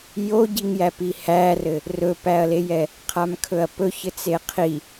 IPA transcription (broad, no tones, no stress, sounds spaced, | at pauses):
j o ɟ i ŋ j æ p i h æ r ɘ | r ɵ p æ ɐ̯ l e j ɛ | qʰ a m kʰ ɵ ɐ̯ p ɵ ç ɘ t͡s e qʰ i